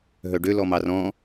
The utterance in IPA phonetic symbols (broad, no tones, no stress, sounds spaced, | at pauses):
ɦ œ ɖ ø l ɔ m ɑ r ɔ̃